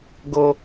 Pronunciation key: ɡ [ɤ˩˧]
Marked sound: incorrect: ɤ˧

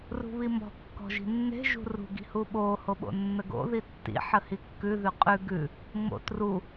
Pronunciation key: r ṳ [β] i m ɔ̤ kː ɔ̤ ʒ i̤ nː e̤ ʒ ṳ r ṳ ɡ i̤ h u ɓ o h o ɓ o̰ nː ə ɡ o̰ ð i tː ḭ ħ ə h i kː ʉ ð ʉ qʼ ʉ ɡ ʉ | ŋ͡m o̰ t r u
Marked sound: correct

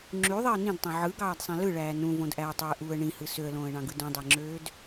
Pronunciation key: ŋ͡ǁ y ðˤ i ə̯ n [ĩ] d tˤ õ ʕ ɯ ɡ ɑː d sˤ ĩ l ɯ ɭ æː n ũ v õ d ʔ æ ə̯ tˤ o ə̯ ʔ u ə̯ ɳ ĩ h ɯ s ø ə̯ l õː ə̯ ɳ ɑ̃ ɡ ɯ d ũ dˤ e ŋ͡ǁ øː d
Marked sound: correct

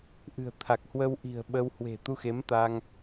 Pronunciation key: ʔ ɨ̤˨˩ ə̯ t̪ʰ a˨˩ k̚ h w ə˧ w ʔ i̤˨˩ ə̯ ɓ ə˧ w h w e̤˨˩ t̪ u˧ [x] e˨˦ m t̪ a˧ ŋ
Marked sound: correct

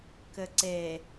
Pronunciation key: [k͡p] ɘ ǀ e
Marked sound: incorrect: k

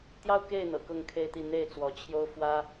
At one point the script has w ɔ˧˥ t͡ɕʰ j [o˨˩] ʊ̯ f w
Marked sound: incorrect: o˥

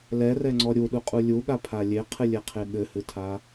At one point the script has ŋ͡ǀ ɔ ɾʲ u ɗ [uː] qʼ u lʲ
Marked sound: incorrect: u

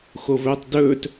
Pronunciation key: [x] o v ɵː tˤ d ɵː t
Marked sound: correct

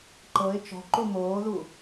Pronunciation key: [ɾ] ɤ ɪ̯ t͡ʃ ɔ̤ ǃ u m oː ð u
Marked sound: incorrect: ǃ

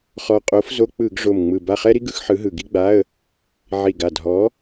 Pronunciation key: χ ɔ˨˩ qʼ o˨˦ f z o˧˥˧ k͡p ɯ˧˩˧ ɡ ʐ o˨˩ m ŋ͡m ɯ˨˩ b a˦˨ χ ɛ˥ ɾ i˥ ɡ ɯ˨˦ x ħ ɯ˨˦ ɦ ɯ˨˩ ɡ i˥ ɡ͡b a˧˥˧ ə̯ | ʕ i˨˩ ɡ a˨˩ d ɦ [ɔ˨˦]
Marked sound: correct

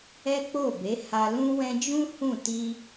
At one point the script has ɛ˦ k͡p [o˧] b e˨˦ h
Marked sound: incorrect: o˦˨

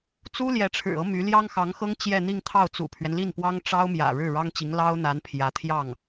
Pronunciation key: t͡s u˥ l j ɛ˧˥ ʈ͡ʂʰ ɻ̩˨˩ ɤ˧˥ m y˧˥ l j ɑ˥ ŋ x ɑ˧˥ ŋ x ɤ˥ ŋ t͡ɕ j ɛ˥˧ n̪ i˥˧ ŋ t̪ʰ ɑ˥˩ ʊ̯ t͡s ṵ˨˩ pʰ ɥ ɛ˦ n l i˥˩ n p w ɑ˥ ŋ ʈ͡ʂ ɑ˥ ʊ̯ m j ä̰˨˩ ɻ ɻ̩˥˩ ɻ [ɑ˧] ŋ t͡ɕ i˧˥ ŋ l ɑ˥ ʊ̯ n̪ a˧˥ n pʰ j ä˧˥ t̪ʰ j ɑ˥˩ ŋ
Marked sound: incorrect: ɑ˥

